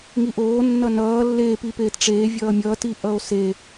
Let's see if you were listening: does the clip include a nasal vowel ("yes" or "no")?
no